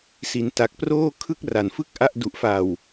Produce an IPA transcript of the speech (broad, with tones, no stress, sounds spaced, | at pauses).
s i˩˦ n t a˨˩ k̚ p r oː˥˩ kʰ ɯ˥˩ k̚ r a˨˩ n f ɯ˥˩ k̚ ʔ a˦˥ ʔ d u˨˩ ʔ f a˨˩ w